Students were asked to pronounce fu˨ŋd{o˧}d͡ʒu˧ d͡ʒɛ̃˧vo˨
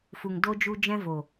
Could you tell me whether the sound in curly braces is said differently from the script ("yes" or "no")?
no